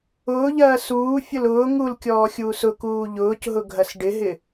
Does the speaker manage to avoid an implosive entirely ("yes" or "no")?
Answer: yes